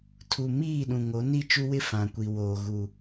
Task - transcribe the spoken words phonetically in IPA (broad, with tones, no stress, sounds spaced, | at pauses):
tʰ u˨ m iː˦˨ ɗ ũ˨ ŋ o˨˦ n i˦˨ t͡ʃ u˦ w ɪ˦ f ã˨ kʷ i˨ w oː˨ ɣ u˨